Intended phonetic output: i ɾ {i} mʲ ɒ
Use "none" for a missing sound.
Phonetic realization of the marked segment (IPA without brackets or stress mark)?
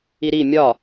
i